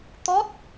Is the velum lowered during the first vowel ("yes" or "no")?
no